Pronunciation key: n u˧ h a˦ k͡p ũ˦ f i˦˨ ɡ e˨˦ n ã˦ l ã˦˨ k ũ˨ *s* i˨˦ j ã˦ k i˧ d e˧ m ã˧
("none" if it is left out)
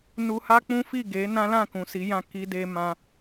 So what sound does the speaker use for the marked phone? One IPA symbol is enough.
s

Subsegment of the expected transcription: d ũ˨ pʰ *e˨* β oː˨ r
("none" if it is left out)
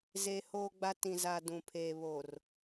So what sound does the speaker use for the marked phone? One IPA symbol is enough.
eː˨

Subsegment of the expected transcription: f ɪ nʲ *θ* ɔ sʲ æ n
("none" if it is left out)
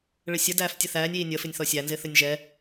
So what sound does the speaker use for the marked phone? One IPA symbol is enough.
θ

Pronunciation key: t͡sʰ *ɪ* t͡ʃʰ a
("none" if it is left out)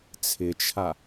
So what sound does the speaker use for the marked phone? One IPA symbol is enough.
ɪ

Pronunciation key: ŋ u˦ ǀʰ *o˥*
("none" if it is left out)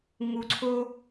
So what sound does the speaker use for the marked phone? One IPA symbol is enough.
o˥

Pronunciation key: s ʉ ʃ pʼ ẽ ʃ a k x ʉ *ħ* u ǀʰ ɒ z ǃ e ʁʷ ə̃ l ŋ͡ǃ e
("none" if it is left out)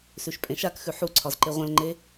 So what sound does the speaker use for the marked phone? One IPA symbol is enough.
ħ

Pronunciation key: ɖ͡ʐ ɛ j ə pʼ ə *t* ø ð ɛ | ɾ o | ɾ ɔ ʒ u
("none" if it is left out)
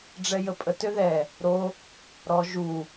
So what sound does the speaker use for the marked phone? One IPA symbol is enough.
t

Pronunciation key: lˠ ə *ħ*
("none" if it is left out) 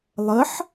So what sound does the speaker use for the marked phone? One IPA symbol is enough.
ħ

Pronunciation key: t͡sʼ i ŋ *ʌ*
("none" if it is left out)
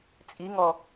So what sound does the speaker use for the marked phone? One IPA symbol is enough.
ɔ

